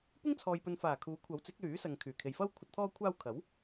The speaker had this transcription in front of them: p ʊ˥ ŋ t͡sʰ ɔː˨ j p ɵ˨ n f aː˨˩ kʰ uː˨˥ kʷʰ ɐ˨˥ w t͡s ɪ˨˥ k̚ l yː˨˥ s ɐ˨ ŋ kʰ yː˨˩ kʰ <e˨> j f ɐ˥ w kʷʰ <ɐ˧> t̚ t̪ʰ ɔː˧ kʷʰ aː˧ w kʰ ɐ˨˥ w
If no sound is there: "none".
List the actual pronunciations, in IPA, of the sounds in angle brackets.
e˨, ɐ˨

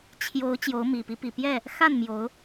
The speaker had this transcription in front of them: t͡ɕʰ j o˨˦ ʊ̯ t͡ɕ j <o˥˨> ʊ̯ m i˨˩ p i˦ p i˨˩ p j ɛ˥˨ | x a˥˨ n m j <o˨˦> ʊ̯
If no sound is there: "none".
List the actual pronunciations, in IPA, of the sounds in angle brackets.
o˨˦, o˨˦

